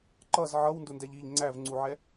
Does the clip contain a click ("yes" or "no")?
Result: yes